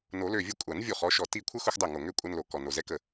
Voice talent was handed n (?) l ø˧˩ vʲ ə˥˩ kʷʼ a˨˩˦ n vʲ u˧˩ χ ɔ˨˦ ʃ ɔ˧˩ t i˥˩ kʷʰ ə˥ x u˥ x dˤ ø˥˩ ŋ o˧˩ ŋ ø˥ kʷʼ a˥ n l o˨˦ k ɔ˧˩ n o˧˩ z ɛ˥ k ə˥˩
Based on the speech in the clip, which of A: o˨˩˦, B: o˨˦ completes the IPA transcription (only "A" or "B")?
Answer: A